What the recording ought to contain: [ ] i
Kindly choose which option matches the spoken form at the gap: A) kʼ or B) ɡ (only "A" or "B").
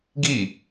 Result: B